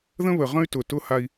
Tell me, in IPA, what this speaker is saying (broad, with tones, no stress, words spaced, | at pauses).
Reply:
ðə̃˦βə˨ʁə̃˦y̯ tʊ˨tʊ˦ ha˦i̯